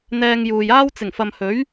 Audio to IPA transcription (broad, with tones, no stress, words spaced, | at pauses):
n̪ɛː˧ŋjuː˨jaː˥w t͡sɪ˨˩ŋfɐ˨mhɵ˨˥ɥ